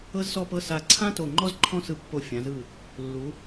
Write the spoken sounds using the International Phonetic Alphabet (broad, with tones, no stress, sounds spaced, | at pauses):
ɤ˥ z s ɔ˥˧ p ɤ˥˧ s a˧˩ ǀʰ ã˥ t o˧˩ ŋ͡ǃ ɔ˥ z ǃʰ ɔ̃˥˧ s ɯ˧ pː o˧˩ fʲ ã˩˧ z ɯ˧˩ | lː u˩˧